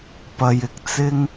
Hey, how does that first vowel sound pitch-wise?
low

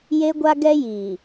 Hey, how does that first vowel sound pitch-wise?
high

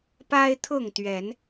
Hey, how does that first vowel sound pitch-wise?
high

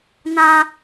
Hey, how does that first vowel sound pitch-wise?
high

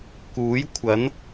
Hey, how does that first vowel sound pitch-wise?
rising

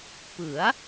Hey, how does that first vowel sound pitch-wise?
rising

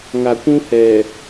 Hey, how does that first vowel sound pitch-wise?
low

